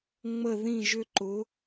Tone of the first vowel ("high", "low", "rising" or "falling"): falling